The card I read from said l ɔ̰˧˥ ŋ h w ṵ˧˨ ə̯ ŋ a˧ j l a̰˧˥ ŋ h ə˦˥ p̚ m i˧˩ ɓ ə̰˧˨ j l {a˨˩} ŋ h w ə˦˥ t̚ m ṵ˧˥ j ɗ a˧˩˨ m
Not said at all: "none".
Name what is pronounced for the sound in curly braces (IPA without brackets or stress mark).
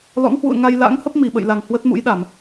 a˨˩